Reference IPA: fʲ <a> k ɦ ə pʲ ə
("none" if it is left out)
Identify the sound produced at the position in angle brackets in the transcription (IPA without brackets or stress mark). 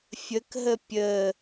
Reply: ə